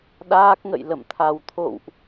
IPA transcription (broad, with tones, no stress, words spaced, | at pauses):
ɗaː˦˥k̚ŋə̰˧˨j lə̰˧˨mt̪ʰa˨˩wt̪ʰo̰˧˨wʔ